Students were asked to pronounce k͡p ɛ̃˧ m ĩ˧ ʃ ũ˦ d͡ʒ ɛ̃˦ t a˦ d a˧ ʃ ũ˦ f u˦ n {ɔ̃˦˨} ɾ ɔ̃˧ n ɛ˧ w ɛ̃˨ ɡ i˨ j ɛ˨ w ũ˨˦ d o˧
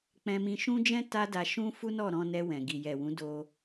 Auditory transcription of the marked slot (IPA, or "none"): ɔ˦˨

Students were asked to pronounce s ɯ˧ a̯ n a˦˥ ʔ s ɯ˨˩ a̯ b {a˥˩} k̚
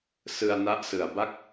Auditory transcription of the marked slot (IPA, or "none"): a˥˩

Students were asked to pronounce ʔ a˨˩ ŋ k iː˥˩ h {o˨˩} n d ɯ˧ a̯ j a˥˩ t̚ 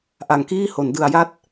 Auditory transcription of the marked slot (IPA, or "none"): o˩˦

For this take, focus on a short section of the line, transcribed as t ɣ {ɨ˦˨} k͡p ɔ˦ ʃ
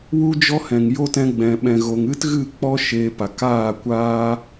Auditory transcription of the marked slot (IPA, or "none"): ɨ˦˨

